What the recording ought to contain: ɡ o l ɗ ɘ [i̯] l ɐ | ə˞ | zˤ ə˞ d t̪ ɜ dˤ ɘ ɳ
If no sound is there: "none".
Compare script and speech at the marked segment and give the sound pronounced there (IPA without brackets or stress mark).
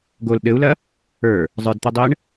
u̯